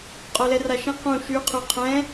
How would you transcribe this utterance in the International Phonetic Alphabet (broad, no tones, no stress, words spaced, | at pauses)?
qʼolɛraʃẽ qũ ʃy qʰʉqʰɛ̃